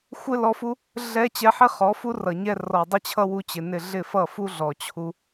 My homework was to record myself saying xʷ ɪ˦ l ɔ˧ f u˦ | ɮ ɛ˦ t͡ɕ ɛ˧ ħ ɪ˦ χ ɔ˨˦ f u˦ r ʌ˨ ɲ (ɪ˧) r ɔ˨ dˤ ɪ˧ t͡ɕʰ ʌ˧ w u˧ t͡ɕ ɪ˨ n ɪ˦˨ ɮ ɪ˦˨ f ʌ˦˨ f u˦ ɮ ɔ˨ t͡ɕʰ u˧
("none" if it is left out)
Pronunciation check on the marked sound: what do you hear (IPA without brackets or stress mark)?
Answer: ɛ˧